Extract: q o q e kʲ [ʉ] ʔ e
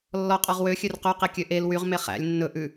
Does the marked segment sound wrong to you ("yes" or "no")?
yes